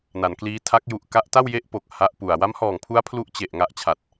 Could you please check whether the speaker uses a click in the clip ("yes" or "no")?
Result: no